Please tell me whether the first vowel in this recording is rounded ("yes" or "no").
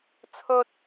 yes